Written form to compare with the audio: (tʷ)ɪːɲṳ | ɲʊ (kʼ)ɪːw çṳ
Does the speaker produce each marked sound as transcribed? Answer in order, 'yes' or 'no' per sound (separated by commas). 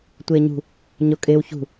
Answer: yes, yes